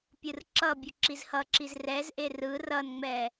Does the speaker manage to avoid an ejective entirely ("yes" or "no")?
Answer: yes